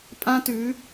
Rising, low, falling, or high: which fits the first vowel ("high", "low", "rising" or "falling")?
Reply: high